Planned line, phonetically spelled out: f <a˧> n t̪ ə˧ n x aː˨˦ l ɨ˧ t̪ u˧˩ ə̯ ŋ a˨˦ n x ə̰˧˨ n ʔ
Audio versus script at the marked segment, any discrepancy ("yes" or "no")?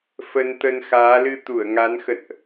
yes